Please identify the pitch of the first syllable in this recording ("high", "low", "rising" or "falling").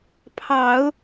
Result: low